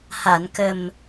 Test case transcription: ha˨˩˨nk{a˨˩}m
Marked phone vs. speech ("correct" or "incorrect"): incorrect